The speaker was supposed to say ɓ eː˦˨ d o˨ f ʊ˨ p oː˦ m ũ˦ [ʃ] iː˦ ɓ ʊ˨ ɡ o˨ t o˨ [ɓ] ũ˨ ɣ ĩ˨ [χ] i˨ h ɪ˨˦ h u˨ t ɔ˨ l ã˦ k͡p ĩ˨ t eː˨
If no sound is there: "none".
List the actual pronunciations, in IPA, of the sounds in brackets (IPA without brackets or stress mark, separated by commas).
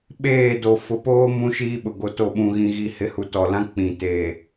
ʃ, ɓ, ɣ